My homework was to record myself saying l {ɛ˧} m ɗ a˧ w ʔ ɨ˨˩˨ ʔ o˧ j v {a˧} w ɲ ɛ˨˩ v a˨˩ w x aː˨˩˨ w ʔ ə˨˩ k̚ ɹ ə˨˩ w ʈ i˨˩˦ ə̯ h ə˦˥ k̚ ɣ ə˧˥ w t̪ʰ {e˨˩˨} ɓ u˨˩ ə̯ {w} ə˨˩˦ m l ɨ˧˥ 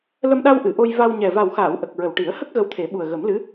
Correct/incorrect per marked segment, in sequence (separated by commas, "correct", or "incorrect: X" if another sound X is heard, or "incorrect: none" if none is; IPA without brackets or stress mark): incorrect: ə˧, correct, incorrect: e˨˩˦, incorrect: ɣ